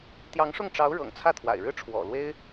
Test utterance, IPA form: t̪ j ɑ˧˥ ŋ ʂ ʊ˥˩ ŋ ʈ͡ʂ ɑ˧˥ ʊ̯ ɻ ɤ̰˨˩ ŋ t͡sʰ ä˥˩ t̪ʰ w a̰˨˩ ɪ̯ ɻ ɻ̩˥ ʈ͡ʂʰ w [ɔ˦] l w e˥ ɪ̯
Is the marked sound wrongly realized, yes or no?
yes